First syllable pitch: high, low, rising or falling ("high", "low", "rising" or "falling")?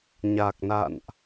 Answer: low